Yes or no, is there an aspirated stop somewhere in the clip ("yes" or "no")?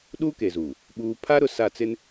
yes